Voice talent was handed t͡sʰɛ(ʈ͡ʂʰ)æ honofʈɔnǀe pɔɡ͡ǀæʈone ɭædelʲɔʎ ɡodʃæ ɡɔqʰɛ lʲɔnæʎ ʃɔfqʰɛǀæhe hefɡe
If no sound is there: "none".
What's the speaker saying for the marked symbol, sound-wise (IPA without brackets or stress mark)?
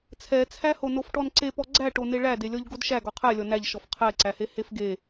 t͡sʰ